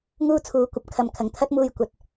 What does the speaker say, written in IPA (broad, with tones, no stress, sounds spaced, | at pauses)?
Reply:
ŋ uː˥ t͡sʰ uː˨˧ kʷ ɐ˨ p̚ kʰ ɐ˨ m kʰ ɐ˨˩ ŋ t̪ʰ ɐ˥ t̚ m uː˧ j kʷ ɐ˧ t̚